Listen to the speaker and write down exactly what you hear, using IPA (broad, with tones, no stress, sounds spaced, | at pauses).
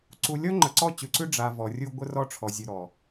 ǀ u˨ lʲ ɔ˦ ŋ͡ǃ ə˨ ǀ ɔ˦˨ t͡ɕ ʉ˨ ǀ ʉ˦ ɖ͡ʐ a˨ v ɔ˨ rʲ u˦ ɡʷ ə˦ r ɔ˦ ʈ͡ʂʰ ɔ˨ zʲ ʉ˨ ɾ ɔ˨